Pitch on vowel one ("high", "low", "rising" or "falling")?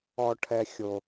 low